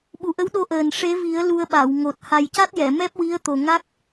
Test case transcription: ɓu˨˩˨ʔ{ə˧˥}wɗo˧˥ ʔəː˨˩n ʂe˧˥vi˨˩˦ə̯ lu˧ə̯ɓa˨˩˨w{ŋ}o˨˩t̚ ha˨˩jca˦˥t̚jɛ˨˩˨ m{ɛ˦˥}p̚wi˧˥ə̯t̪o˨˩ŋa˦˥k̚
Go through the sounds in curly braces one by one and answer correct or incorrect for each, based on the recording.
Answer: correct, correct, correct

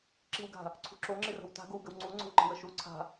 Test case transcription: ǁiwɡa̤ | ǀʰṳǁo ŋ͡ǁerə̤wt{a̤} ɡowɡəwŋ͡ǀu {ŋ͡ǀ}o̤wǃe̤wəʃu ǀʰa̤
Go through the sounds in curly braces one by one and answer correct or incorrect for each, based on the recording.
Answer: correct, correct

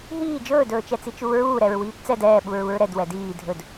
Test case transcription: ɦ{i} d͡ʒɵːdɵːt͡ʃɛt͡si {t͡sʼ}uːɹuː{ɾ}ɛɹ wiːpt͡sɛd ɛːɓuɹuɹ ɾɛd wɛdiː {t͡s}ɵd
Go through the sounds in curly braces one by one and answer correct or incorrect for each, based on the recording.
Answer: incorrect, incorrect, correct, incorrect

